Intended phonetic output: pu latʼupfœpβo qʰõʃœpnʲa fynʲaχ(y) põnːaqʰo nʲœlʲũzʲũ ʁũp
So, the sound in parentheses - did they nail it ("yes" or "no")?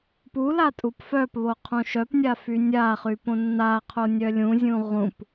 yes